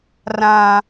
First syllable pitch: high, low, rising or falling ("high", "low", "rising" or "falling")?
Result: high